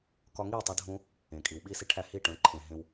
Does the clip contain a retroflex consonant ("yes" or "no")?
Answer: yes